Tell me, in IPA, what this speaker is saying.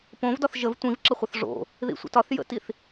p õ v d ɒ θ ʒ ə v tʷ ĩ v ǁ ə χʷ ɨ θ ʐ o̰ | ð ḭ sʷ ə̰ t ɒ θ j ə̰ t i θ

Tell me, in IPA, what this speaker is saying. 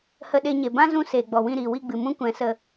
h ə˧ ɗ e˧ ɲ e˨ b ã˦ z ũ˧ s eː˨ ɡ͡b ɔ˨ w ĩ˦˨ ɾ iː˨ w i˦˨ ɡ͡b ɨ˨ m ũ˦ kʷ ɛ̃˨˦ s ə˧

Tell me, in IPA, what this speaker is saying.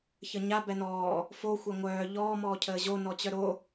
ç ə ɲ a b ɛ n ɔː | f o xʷ ɛ ŋʷ œː ʎ ɔː m ɔː cʰ əː ʑ o n ɔ t͡ɕ œ ɾ o

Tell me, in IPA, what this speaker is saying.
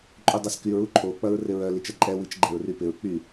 ǃʼ u dˤ ɐ s k y ɹ u ǃʰ o k͡p ɐ ɹ r ɪ ɹ œ l i t͡ʃ ɐ ǃʼ ɛ w i t͡ʃ ɡ͡ǃ ɛ ɹ r y p ɪ ɹ k͡p y

